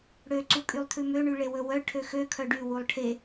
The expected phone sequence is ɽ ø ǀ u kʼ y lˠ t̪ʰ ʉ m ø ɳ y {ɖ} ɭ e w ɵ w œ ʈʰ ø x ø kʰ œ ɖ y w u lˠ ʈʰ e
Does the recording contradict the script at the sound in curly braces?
yes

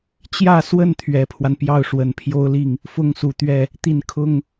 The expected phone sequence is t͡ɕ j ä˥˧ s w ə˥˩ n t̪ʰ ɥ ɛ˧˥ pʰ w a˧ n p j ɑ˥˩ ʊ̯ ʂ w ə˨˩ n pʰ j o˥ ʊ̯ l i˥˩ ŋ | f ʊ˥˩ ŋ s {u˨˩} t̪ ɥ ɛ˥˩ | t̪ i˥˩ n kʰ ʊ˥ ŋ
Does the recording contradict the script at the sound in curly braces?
no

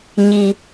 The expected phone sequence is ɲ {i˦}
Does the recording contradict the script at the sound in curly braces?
no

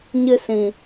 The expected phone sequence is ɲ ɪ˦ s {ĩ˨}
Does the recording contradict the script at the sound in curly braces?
no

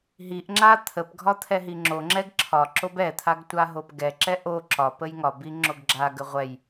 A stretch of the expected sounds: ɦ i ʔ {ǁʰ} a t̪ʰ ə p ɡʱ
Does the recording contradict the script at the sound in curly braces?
yes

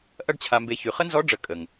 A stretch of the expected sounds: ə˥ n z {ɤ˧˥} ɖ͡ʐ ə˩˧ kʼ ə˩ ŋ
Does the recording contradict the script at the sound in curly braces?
yes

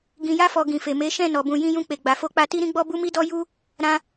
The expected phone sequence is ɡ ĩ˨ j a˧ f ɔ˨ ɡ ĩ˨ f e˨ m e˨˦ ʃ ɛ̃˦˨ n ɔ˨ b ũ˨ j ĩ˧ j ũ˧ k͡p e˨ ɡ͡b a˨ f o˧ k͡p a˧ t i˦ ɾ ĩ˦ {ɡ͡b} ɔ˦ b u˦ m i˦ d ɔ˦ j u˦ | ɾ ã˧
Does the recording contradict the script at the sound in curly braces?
no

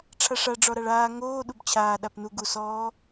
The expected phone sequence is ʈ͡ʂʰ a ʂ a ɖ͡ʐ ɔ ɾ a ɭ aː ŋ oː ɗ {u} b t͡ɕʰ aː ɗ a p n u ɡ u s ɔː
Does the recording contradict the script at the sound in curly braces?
no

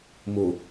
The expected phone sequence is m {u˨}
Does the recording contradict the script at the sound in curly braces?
yes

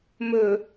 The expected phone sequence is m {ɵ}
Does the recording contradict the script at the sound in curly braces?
no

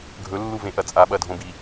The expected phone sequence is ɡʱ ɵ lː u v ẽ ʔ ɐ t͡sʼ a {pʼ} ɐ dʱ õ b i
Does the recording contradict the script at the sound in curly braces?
yes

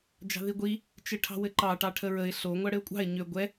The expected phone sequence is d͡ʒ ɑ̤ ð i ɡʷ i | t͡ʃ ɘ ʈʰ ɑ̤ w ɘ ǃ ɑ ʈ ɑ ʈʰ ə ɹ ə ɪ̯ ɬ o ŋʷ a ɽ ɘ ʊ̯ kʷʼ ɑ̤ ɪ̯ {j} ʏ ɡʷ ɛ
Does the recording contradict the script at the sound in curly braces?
yes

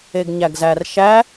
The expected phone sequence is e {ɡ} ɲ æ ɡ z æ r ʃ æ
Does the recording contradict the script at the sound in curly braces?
no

